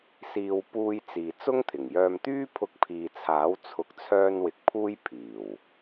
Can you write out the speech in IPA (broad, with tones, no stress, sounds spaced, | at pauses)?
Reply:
s iː˧ w p uː˧ j t͡s iː˨ t͡s ʊ˥ ŋ t̪ʰ ɪ˨˩ ŋ j œː˧ m t̪ yː˥ pʰ ʊ˧ k̚ pʰ iː˨ t͡sʰ aː˨˥ w t͡sʰ ʊ˨˥ k̚ t͡sʰ œː˧ n w ɪ˨ k̚ pʰ uː˥ j pʰ iː˨˩ w